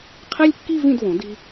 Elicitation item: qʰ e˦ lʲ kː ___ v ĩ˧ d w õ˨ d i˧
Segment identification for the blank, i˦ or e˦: i˦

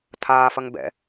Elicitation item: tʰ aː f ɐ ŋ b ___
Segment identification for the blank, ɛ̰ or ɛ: ɛ̰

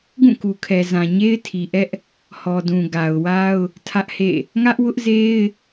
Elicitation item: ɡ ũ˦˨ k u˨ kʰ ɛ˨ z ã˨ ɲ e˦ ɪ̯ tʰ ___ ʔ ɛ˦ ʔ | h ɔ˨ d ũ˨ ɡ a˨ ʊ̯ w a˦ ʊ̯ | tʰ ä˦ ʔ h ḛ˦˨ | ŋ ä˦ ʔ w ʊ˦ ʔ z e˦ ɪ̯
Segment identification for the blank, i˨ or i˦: i˨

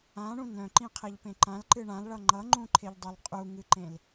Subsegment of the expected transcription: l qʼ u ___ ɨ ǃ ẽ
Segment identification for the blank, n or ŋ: ŋ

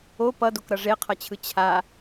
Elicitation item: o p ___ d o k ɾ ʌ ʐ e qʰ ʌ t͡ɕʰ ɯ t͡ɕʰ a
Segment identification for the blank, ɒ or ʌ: ʌ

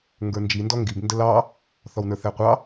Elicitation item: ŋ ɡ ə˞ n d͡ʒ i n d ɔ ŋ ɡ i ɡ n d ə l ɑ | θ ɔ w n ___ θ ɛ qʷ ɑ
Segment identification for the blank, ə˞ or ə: ə˞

